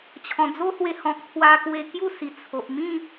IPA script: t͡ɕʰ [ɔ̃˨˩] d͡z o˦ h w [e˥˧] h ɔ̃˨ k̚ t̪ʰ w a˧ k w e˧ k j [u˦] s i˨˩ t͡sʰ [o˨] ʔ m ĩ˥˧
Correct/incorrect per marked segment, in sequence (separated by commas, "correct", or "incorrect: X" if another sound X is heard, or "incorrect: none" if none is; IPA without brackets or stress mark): correct, incorrect: e˧, incorrect: u˥˧, correct